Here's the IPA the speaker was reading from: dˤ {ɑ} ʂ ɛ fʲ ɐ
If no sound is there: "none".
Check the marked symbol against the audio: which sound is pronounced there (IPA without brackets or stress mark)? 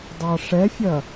ɑ